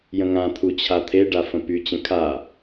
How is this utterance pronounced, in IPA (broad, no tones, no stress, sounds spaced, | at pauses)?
j ə̃ ŋ ã t̪ʰ u t͡ɕʰ a t̪ʰ e ɖ a f ə̃ p y t͡ɕ ə̃ kʰ a